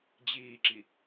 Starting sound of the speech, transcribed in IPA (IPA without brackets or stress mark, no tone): d͡ʑ